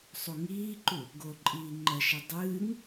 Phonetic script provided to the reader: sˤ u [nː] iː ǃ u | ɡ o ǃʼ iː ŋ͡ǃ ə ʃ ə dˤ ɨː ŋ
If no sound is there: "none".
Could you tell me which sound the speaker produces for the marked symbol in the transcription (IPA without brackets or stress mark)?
ŋ